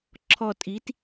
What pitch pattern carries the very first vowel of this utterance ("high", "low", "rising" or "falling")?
low